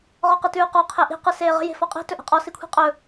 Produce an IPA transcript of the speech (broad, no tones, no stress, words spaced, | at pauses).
ʁɔqɯtʉːqɔ qʰeʔi̤ qɯseːʁə̤ je̤fɔqʼi̤ tɵʔe̤qʼɔ sikʷʰi̤qʼɵ